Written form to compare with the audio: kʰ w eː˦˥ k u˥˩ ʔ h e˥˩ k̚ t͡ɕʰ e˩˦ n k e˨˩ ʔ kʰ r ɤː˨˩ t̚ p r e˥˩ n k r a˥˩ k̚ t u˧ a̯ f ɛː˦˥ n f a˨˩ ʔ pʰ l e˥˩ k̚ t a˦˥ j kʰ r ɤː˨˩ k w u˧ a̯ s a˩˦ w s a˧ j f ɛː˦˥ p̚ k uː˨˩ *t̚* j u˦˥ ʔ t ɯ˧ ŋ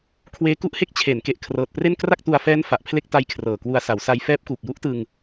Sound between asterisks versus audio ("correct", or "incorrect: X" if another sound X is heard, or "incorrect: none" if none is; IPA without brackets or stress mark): incorrect: k̚